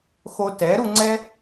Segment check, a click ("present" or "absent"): present